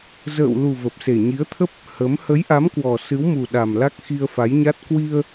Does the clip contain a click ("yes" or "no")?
no